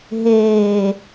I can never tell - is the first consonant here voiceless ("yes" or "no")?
no